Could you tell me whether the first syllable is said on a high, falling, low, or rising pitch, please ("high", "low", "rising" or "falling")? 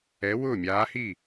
rising